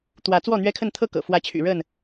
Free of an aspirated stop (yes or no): no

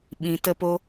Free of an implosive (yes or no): no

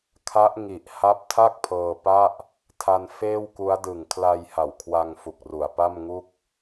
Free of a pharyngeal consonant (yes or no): yes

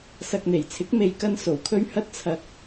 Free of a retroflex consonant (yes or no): yes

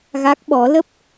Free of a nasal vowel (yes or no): yes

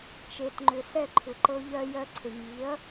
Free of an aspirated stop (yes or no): no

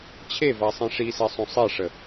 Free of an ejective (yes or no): yes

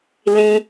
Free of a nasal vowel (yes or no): no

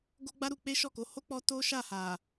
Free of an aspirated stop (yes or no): yes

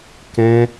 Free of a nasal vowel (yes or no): no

